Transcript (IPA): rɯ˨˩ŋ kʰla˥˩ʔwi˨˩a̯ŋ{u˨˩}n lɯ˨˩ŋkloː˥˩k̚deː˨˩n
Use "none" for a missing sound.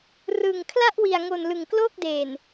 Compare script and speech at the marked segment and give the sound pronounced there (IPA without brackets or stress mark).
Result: o˨˩